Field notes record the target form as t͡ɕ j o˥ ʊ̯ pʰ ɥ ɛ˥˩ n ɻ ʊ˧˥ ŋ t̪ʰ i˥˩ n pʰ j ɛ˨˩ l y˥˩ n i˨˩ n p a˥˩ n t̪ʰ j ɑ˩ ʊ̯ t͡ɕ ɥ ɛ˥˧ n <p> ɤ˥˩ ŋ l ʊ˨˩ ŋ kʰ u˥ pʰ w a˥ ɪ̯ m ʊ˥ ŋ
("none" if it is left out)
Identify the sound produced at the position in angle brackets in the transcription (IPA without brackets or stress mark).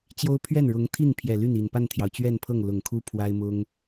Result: pʰ